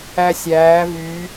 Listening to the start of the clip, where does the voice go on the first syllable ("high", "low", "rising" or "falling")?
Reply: high